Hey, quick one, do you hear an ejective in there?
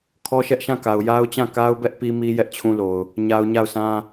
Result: no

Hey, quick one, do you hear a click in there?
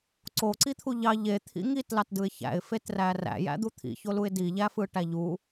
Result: yes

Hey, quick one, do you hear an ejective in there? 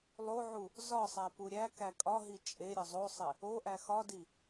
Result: yes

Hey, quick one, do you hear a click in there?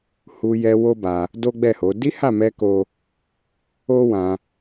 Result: no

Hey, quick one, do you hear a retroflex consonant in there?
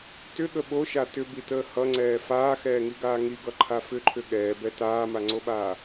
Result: no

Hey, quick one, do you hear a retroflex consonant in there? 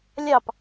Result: no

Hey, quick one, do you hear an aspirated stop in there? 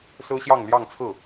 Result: yes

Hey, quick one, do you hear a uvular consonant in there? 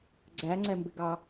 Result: no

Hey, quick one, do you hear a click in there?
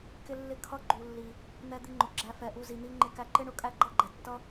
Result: yes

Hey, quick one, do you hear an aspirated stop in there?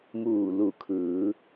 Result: yes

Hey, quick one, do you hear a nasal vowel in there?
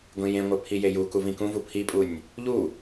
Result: yes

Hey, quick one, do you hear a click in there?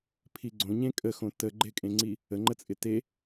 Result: yes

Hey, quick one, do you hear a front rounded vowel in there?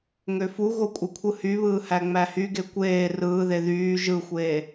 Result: yes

